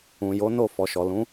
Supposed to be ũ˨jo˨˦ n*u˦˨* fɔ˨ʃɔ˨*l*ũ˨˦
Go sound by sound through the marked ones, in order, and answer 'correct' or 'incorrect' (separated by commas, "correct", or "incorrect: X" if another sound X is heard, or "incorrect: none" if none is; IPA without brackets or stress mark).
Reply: incorrect: o˦˨, correct